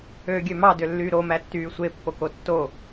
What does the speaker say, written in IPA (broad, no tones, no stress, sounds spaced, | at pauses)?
ø ɡʲ ø m ɑ d ø lː yː ɾ o m æ tː yː sʷ e pː o k o tː o